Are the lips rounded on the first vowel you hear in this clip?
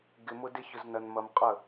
no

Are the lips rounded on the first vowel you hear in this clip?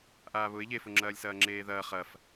no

